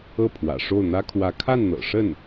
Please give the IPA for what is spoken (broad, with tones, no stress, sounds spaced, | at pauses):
ɤ˥˩ pʰ w ä̰˨˩ ʂ o˥˩ ʊ̯ n̪ ä˥ kʰ w ä˧˥ kʰ a˥˩ n n̪ ɤ̰˨˩ ʂ ə˥˩ n